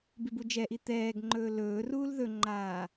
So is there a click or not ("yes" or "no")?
yes